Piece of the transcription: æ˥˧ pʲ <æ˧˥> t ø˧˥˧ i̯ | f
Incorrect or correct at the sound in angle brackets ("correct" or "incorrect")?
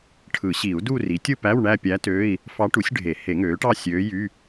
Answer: correct